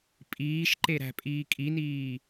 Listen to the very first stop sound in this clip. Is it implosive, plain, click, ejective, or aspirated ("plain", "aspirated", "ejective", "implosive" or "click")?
ejective